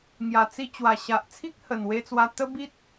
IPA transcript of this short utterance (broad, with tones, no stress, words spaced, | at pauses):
ŋja˨˩t͡si˧ t͡ɕwa˨˩ɕa˨ʔt͡sʰi˦k̚ hə˨˩nwe˧t͡swa˧ t̪ə˦bi˦t̚